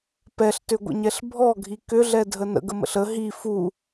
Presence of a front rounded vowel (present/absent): present